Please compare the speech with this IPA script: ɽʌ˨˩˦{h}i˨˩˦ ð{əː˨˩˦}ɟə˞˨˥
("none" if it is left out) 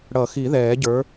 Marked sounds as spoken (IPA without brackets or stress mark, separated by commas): x, ɛː˨˩˦